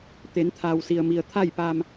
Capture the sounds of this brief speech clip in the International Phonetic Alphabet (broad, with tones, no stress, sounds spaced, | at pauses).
t̪ e˩˧ n t̪ʰ aː˩ w s i˩ ə̯ m i˩ ə̯ t̪ʰ a˥˨ j p aː˧ m